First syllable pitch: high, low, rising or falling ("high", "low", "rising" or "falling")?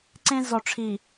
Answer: high